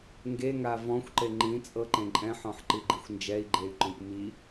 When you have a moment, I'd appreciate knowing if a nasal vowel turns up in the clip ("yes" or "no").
yes